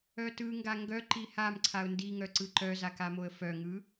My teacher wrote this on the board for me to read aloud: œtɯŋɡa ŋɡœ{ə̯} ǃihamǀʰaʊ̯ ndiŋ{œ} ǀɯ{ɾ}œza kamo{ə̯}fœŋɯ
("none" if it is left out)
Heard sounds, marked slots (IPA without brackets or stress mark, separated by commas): none, œ, ǃ, ə̯